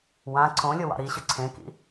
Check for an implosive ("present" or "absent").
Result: absent